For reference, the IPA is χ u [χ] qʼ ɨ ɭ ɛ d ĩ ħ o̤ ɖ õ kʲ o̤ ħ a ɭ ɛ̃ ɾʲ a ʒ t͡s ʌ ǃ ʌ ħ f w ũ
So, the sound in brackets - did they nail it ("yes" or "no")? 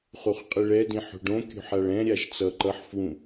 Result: yes